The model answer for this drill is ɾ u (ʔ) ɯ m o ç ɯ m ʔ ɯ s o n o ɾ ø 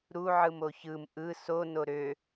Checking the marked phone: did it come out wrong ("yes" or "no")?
yes